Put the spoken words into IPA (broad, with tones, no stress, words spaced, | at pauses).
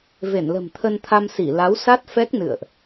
ve˧˩nlə̤˨˩mt̪ʰə˧nt̪ʰa˧m si˧˩la˨˦wsa˦˥t̚ fɛ˦˥k̚ nɨ̰˧˨ə̯ʔ